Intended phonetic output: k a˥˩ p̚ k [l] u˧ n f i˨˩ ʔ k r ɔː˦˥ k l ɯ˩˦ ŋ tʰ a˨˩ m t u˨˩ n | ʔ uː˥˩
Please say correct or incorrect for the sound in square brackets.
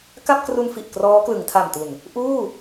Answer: incorrect